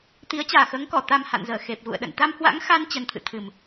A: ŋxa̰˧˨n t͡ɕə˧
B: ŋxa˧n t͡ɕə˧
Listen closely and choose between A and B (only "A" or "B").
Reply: B